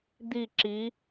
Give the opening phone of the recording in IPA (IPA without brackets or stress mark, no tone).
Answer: d̪